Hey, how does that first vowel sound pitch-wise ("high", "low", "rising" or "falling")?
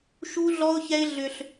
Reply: high